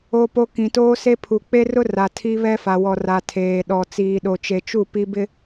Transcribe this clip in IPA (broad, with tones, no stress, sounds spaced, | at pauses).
o˦ p o˦ k ĩ˨ t oː˦ s e˦ pʰ u˨ k͡p e˦ r ʊ˦ r a˨ tʰ i˦ β ɛ˦ f a˨ w ɔ˨ r a˨ tʰ eː˨ ɗ ɔ˨ t͡s iː˨ ɗ o˨ t͡ʃ e˨ t͡ʃ u˦˨ p i˦ b ɪ˦